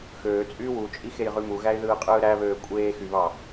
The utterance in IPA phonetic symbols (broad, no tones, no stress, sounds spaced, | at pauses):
x øː t͡sʼ yː w u t͡ʃʼ i x e j ʁ y m u ɣ æ ɪ̯ ð ɯː qʼ ɯː ɾ æ β øː kʷʼ eː x y β ɑ